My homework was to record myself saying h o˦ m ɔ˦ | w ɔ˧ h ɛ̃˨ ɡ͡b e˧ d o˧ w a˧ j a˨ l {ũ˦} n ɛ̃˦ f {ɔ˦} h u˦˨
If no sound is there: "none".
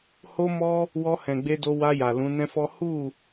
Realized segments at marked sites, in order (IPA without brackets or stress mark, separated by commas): ũ˨˦, ɔ˦